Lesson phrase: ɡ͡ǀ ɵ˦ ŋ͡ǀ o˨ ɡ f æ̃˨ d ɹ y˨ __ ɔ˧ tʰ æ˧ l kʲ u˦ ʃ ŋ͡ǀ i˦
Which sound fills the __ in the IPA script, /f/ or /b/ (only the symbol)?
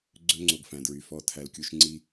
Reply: f